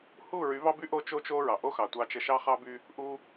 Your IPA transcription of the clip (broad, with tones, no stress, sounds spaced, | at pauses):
h u˦˨ ɹ y˨˦ v ɑ˦ b y˦ ʔ o˦ t͡ʃ o˦ t͡ʃ o˦ ɹ ɑ˨ ʔ o˦ x ɑ˨ tʷ ɑ˧ t͡ʃ ə˧ ʃ ɑ˦ χ ɑ˦ b y˧ | ʔ u˧